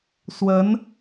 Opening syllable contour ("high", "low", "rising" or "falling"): rising